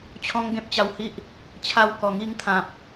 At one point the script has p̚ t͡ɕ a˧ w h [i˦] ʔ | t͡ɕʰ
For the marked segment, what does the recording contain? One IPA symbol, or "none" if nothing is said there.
i˦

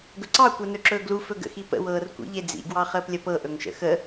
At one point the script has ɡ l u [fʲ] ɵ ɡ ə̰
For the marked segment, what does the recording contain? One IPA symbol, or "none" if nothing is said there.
f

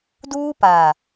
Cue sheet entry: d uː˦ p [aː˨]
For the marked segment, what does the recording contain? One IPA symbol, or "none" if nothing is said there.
aː˨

